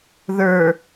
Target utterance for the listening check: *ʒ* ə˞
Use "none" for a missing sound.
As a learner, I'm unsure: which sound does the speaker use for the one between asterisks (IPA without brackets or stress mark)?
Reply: ð